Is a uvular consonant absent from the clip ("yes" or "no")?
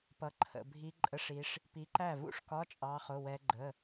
no